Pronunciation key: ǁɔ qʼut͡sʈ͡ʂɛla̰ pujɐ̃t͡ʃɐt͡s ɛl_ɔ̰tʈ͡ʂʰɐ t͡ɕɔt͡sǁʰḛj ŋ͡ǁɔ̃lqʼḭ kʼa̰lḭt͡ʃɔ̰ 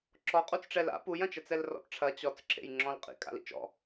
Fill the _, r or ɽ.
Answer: r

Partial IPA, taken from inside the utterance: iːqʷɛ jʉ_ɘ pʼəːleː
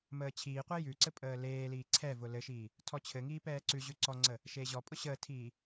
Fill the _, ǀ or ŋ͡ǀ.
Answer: ǀ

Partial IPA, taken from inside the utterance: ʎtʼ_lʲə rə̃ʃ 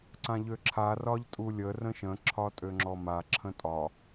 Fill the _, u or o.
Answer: u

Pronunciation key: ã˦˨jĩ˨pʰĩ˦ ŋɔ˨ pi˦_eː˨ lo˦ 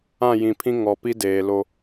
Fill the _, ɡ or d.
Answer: d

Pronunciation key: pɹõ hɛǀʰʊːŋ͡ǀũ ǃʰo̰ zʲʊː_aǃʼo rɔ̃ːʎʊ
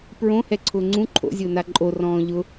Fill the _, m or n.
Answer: n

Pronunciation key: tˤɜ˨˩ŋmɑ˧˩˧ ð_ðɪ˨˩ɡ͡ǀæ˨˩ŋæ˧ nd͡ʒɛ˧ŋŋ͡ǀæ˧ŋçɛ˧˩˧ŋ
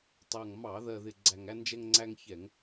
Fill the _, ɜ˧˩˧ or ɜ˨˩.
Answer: ɜ˨˩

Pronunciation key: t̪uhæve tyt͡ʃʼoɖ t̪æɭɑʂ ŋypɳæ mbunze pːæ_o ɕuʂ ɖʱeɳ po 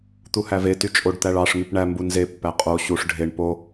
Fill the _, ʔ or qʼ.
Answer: qʼ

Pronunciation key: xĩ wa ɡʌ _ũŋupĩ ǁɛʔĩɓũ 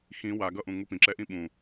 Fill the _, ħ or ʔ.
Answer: ʔ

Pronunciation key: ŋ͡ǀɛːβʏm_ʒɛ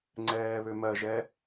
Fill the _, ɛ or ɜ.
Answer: ɜ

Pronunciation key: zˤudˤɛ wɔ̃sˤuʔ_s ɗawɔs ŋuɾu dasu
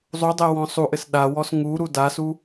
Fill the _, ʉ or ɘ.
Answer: ɘ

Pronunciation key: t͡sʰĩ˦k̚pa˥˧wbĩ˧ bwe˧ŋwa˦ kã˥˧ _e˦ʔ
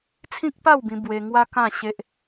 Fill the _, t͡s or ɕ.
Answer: ɕ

